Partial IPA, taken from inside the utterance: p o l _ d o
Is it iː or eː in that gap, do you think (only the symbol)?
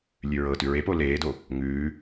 eː